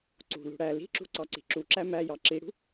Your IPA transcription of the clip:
ǀ ṳ l ṳ ɽ æ l i̤ ǁ ṳ ǀ ɑ ǀ i̤ ǁ u ǁ æ m æ j ɑ ǁ i ɽ ṳ

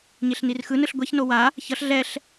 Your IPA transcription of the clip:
ɲ e ɬ n i r x ɯ n ɯ ɬ ɡʷ ɛ ç n o w a | ç ʌ ɬ ɮ ɛ ɬ

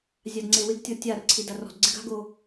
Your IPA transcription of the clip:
zʲ a d ŋ͡ǀ e w ɪ ɡ tʲ ɔ tʲ a r ǀʰ i d a r ɔ̤ d ɡ͡ǀ ɪ ɡ a̤ ɡ o

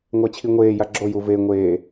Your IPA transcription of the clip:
ŋʷ ɛ t͡ɕʰ i ŋʷ eː j a ɡ͡ǁ o j u v e ŋʷ eː

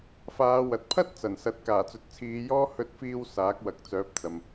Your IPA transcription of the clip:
f aː˨˧ w ɐ˨ t̚ pʰ ɐ˥ t̚ t͡s ɐ˨˩ n s ɐ˨ t̚ k aː˨˩ t͡s ɵ˨ t̚ t͡sʰ iː˨˧ j ɔː˥ h ɵ˧ t̚ f iː˧ w s aː˨˥ k̚ w ɐ˨ k̚ t͡s œː˨˥ p̚ t͡s ɐ˨ m

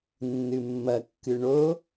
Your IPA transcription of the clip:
nː ɨ mː ɐ kː ɨ ɳ o

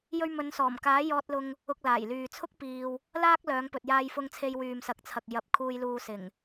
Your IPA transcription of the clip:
j ɵ˧ ɥ m ɵ˨˧ n s ɔː˨˩ m k aː˨˥ j ɔː˧ t̚ l ʊ˧ ŋ | ʊ˧ k̚ l aː˨˩ j l yː˨ t͡sʰ ʊ˥ k̚ p iː˧ w | l aː˥ k̚ l œː˨˧ ŋ p ɵ˨ t̚ j aː˧ j f ʊ˧ ŋ t͡sʰ e˧ j w yː˨ m s ɐ˨˥ k̚ t͡sʰ ɐ˨ k̚ j ɐ˨˥ p̚ kʰ uː˧ j l uː˧ s ɪ˨˩ ŋ

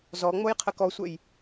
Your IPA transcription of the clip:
z ɔ ŋ͡m o j qʰ ə k ɔ sʷ ɛ j

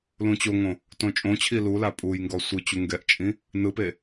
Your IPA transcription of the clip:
l ũ t͡ɕ o ŋ õ | t õ t͡ʃʼ õ t͡ɕʰ i l u l a pʼ u j ŋ ɡ ɔ sʷ ɯ t͡ɕ u ŋ ɡ ɛ ʔ t͡ʃʼ ĩ | n ɯ p e

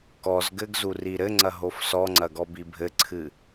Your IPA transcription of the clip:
k ɔ z ɡ ɘ ɡ z u r i ɾ ɘ ŋ͡ǀ ɐ ɦ o f s ɔ ŋ͡ǀ ɐ ɡ ɔ b i bʱ ɘ ǀʰ ɨ

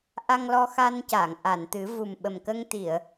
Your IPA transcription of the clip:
ʔ a˧ ŋ l ɔ˧ x a˧ n c aː˨˩˨ ŋ ʔ a˨˩˨ n t̪ ɨ˨˩˦ v u˨˩ m ɓ ə˨˩ m k ə˧ ŋ t̪ i˨˩˨ ə̯

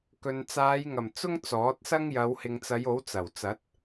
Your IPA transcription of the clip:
k ɵ˨ n t͡s aː˨˧ j ŋ ɐ˨˩ m t͡s ʊ˥ ŋ t͡s ɔː˨˥ t̚ s ɐ˥ ŋ j ɐ˨˧ w h ɪ˨ ŋ t͡s ɐ˨˧ j o˨˥ w t͡s ɐ˨˩ w t͡s ɐ˨˥ t̚

